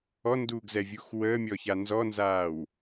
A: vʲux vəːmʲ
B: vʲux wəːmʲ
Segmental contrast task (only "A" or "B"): B